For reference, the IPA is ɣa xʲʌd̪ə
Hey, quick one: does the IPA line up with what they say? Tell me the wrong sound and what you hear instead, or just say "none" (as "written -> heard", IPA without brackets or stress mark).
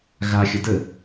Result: ʌ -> ə